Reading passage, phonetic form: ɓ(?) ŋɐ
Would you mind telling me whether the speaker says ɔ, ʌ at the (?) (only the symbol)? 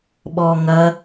ɔ